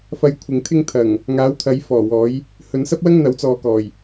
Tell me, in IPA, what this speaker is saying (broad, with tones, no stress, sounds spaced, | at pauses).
f ɐ˨ j kʷʰ ɪ˨ ŋ t̪ʰ ɪ˧ ŋ t̪ʰ ɐ˨˩ ŋ | ŋ aː˨˥ w t̪ʰ ɐ˨˥ j f ɔː˨˩ w ɔː˨˥ j | h ɵ˨˧ n s ɐ˥ p̚ w ɐ˥ ŋ n̪ ɐ˨˥ w t͡s ɔː˨ k ɔː˨˩ j